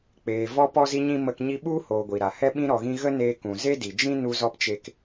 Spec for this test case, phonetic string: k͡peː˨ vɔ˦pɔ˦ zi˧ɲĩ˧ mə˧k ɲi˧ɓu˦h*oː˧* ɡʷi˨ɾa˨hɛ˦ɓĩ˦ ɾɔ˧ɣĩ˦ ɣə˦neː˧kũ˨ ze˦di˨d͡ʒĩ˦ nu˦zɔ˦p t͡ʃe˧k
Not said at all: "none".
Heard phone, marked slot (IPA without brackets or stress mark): oː˨